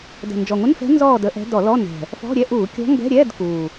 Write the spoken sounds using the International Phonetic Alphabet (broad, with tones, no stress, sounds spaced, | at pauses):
d ə̤˨˩ n d͡ʒ ɔ˨˩ ŋʷ ə˧˥˧ n f ɛ̤˧˥ n z ɔː˥˨ d ə˧˩˧ ʔ ɛ̤˧˥ d ɔ˧˩˧ l ɔ˧˥˧ n ɛ̤˨˩ | f ɔ̤˧˥˧ ɾʲ ɛ˧˥˧ ʔ uː˧˩˧ kʲ ɔ̤˧˥ ŋ ɡ ɛ̤˧˥˧ ɾʲ ɛː˧˥˧ d k uː˨˩